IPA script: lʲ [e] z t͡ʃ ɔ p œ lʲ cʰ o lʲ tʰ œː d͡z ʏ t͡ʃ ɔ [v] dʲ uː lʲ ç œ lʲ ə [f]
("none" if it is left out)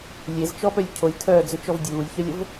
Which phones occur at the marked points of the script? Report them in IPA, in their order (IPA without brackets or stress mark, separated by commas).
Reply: e, v, v